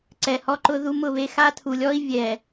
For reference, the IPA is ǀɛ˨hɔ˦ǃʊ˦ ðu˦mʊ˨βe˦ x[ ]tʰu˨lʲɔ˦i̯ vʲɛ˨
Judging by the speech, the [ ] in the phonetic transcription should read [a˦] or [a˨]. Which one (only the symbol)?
a˦